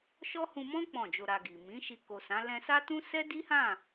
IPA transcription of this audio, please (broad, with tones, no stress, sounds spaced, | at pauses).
ʃ ɔ˦ h ũ˧ m ɔ̃˦ k͡p ɔ̃˦˨ d͡ʒ o˧ ɾ a˧ ɡ i˨ m ĩ˨˦ ʃ i˧ k o˨ s ã˨˦ l ɛ̃˧ s a˦ t ũ˦ s ɛ˦ d i˦ h ã˦˨